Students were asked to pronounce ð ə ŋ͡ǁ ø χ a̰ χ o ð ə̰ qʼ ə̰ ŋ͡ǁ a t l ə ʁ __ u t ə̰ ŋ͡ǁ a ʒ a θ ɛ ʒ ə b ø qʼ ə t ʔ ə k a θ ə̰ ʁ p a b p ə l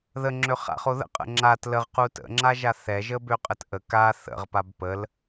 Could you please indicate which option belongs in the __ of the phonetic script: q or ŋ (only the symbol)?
q